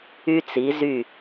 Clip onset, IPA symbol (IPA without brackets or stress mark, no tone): y